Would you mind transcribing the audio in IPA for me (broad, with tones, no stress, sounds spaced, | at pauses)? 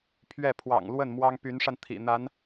pʰ ɥ ɛ˥˩ pʰ w ɑ̰˨˩ ŋ l w ə˥˩ n m w ɑ˥ ŋ p y˧˥ n ʂ a˧ n t̪ʰ ḭ˨˩ n̪ a˧˥ n